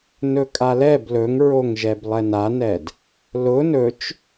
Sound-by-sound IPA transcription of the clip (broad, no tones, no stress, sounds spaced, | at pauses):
n ɵ kʼ a l ɛ b l ɵ ŋ ɹ o ŋ ʒ ɛ b lˠ ɛ n a n ɛ d | l ʊ n ɵ t͡ʃ